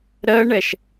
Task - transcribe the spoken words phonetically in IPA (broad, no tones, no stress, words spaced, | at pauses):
ɾɜɳɛʃ